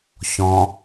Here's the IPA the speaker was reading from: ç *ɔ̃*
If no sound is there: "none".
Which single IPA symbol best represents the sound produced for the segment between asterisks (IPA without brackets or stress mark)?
ɔ̃